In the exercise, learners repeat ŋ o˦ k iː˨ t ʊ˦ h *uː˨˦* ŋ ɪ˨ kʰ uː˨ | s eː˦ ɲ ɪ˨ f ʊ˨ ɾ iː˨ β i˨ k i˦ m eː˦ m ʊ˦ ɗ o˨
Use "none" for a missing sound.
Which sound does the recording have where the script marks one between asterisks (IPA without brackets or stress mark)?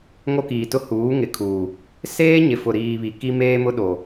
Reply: uː˨˦